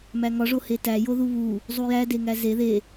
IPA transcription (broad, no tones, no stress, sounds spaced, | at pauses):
m æ ŋ ɒ ʐ o h e t æ j o ð u β u | zˤ u j æ d e ŋ æ z e ð e